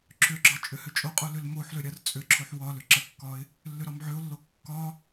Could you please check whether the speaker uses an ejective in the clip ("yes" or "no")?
yes